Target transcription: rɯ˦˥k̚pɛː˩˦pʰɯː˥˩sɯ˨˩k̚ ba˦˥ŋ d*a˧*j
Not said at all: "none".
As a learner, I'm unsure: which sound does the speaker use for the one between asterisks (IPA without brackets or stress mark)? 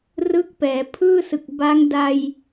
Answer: a˧